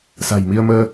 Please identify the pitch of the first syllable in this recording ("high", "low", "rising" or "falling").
low